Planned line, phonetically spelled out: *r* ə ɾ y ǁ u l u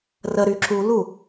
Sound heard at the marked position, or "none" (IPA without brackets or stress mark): r